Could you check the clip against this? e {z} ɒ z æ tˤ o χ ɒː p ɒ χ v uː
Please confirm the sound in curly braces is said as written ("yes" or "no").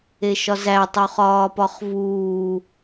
no